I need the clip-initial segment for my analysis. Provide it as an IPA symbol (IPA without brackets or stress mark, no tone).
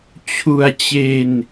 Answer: t͡ɕʰ